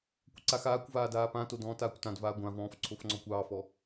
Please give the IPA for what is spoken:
kʷ ə ǀ a x aː kʷ v aː d aː p ã t o d ɔ̃ː t aː kʷ t ã d v aː ɡʷ ã v ɔ̃ː f ǀʰ o f ŋ͡ǀ ɔ kʷ ɑː f ɔ

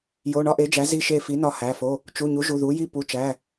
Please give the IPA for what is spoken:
j o˩˧˩ ɳ ɒ˥˨ ʔ e˩˥ d͡ʒ æ˩˥ z i˧˩ ʃ e˧˩ f i˩˥ n ɒ˧˩ h æ˩˧˩ f o˩˧˩ | t͡ʃ u˩˧˩ ɲ u˩˥ ʒ u˩˧˩ ð u˩˥ j i˥˨ p u˩˧˩ t͡ʃ æ˩˧˩

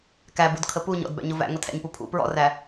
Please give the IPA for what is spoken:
k æ b u d kʰ ə p u ɲ ɔ̰ d b æ̰ ɲ ʊ v æ̰ ŋ ʊ tʰ æ̰ ɲ p u pʰ ṵ p ɹ ɔ̰ r æ

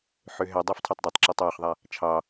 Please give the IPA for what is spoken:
ħ ø ɦ ɛ dˤ ø f tʰ œ tˤ dˤ ɛ tˤ ǁ ɒ tˤ j ø χ ðˤ a | t͡ʃʰ ɑ

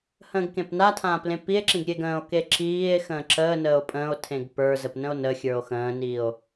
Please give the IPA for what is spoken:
h ə̃ː ɡ k ẽ p n a tʰ ãː p l ẽ p i e̯ ǁ ĩ ɡ ɾʲ e ɡ ə̃ː o̯ k e ǁ iː e̯ x ə̃ː ǁ əː n əː o̯ pʼ ə̃ː o̯ tʰ ẽ ɡ p ə˞ z ə p n ə̃ o̯ n ə xʲ ə˞ o̯ x ə̃ː n iː o̯

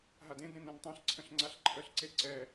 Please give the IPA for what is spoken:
ɦ a d ẽ d ɾ ẽ n ɛ̃ n tˤ ã ɬ ǀʰ ə̃ ɬ ŋ͡ǀ a ɬ ǃʰ ə ɬ ǀ e ǀ ɛ

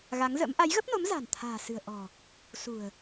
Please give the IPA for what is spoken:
ɣ a˨˦ ŋ z ə̰˧˥ m ʔ a˨˦ j ɣ ə˦˥ p̚ n o˨˦ m z a̤˨˩ n t̪ʰ a̤ː˨˩ s ɨ̤˨˩ ə̯ ʔ ɔ̤˨˩ | s ṳ˨˩ ə̯

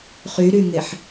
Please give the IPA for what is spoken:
χ y ɾ y ŋ e ħ

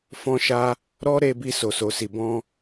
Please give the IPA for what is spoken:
f ɔ̃˧ ʃ a˧ | ɾ ɔ˦ ɾ e˧ b i˧ s o˨ s o˨ s i˨ b ɔ̃˧

